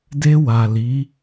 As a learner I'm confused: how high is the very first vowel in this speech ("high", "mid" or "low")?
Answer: mid